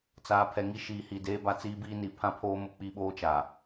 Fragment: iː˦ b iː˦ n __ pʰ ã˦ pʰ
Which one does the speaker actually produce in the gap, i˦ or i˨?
i˨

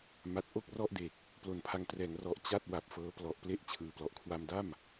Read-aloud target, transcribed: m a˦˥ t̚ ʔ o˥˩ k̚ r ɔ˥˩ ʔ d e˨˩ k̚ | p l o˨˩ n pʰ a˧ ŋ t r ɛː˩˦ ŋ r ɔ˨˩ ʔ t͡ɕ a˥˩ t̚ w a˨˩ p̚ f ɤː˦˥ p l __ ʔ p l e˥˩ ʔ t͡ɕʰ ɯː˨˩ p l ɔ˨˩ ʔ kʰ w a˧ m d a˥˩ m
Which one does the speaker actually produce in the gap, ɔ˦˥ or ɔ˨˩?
ɔ˨˩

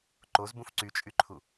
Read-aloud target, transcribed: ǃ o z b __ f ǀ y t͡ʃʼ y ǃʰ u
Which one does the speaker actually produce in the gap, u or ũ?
ũ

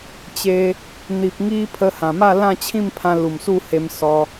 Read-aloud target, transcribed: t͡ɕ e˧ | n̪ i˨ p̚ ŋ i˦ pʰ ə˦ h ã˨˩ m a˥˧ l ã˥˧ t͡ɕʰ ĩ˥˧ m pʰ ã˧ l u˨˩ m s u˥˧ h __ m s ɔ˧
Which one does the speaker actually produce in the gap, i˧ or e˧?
e˧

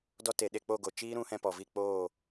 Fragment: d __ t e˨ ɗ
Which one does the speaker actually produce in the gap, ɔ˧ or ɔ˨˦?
ɔ˧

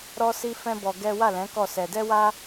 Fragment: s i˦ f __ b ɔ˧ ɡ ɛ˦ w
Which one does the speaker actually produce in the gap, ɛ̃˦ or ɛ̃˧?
ɛ̃˦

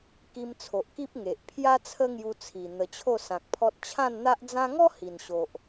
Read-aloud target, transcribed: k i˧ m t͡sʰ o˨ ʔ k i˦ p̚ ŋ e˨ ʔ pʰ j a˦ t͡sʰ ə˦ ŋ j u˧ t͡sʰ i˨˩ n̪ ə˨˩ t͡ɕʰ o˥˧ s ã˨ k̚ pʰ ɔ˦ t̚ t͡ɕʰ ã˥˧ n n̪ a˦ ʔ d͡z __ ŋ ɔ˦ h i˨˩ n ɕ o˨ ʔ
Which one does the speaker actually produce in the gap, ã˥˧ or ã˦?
ã˦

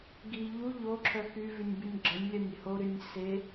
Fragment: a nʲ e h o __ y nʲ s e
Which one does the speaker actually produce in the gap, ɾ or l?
ɾ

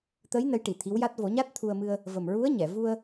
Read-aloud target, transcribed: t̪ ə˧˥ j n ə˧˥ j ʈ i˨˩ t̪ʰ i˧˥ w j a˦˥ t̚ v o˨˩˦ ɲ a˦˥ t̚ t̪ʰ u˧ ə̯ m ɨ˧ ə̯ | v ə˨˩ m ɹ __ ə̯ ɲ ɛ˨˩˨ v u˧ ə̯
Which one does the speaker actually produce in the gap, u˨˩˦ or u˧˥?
u˧˥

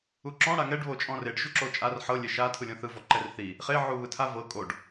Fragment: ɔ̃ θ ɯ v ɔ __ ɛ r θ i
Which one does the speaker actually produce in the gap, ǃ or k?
ǃ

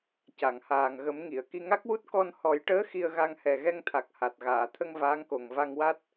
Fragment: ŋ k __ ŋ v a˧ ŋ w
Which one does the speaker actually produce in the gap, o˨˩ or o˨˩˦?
o˨˩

